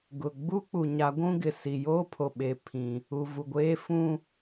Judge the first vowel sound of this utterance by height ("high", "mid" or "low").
high